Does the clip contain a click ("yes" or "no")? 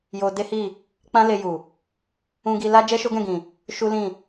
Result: no